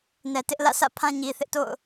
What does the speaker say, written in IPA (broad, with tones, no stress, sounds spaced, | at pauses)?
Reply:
n ɛ˨ t ɪ˦ ʔ l ä̰˦˨ sʰ ä̰˦˨ pʰ ã˦ ɲ i˨ θ ɪ˦ ʔ t o̰˦˨ ʊ̯